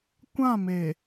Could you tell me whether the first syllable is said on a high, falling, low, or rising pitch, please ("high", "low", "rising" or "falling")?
falling